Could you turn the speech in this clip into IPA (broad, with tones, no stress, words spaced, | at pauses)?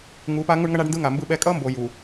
ŋu˨˦pa˦ ŋu˦ɳŋʌ˦ɳa˦ɖndɯ˦ ŋa˨mbɯ˦ɓɛ˦ kʼʌ˦mbo˨ ju˨